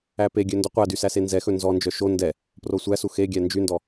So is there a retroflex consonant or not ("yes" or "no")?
no